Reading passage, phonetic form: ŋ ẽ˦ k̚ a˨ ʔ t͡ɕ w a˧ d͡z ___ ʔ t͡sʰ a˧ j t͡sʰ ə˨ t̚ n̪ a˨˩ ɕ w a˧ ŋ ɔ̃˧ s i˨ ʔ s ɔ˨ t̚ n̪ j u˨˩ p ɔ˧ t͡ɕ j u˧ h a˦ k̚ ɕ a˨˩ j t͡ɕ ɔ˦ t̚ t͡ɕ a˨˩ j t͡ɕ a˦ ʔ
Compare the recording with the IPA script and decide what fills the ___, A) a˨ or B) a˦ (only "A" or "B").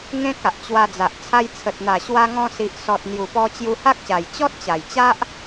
A